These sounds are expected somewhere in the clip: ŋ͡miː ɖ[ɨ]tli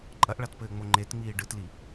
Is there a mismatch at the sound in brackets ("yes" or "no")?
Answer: no